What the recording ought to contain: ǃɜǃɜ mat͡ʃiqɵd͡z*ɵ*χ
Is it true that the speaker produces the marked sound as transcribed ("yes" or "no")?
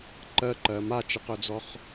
no